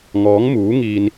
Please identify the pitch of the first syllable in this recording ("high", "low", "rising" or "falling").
rising